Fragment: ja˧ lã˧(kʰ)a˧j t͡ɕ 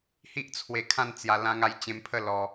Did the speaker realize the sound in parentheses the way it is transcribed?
no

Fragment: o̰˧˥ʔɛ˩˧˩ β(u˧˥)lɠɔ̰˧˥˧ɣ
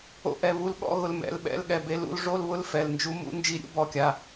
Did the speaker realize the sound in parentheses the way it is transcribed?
yes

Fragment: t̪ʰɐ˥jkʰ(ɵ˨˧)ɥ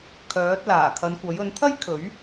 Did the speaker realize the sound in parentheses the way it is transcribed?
no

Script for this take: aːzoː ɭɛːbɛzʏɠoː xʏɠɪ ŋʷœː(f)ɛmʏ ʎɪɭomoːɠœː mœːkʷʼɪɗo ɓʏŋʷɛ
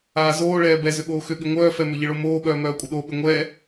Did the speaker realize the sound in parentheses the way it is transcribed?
yes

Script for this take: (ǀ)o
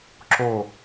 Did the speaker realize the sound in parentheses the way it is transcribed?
no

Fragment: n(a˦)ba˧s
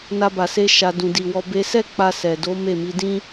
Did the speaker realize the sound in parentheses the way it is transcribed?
yes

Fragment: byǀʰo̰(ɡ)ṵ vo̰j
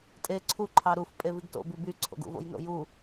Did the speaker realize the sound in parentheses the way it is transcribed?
yes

